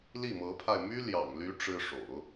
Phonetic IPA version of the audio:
l i˥˩ m ɤ˧˥ pʰ a˧ ɪ̯ m y˥ l j ɑ̰˨˩ ŋ l y˧˥ ʈ͡ʂ ɻ̩˥ ʂ o̰˨˩˦ ʊ̯

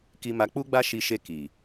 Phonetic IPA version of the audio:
k i˧ m a˧ k͡p u˦ ɡ͡b a˦ ʃ i˧ ʃ e˧ k i˨

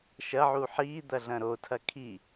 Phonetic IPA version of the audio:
ʃ ɐ ʕ u ħ i d̪ ɐ ɮ ɐ̃ ɾ o tʰ ɐ kʰ i

